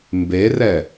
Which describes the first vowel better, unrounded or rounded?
unrounded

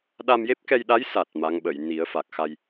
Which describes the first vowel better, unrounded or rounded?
unrounded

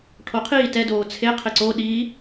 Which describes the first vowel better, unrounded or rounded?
rounded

